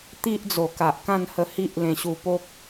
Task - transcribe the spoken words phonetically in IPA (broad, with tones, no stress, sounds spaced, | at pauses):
t̪ i˦ ʔ d͡z o˨˩ k a˨ ʔ k ã˥˧ n h ə˧ h i˦ ʔ l ẽ˧ ɕ u˧ p o˦ k̚